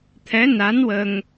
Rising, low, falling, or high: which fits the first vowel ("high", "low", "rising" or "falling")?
rising